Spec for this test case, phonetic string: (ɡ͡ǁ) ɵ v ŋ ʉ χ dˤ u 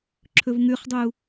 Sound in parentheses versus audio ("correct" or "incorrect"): incorrect